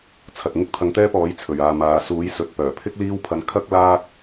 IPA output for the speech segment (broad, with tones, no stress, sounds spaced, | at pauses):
t͡sʰ ɐ˨ t̚ ŋ ɪ˥ k̚ t̪ʰ ɐ˧ ŋ t̪ ɛː˥ p ɔː˨˥ j t͡sʰ ɵ˨˩ ɥ aː˨ m aː˨ s uː˨˥ j s ɵ˨ t̚ p œː˨˩ pʰ ɪ˥ k̚ l iː˥ w pʰ ɐ˧ n kʰ ɐ˥ k̚ l aː˥ k̚